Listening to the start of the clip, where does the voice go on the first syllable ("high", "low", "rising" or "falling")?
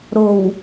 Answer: low